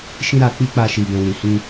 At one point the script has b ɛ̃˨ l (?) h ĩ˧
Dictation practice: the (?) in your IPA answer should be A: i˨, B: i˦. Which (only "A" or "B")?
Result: A